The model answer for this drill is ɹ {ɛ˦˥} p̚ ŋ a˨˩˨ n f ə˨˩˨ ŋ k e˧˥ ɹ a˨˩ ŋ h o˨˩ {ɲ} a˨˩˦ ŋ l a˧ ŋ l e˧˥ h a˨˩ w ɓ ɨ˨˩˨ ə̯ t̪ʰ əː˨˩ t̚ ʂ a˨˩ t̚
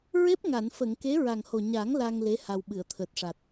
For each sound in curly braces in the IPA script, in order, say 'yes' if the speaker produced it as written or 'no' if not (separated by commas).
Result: no, yes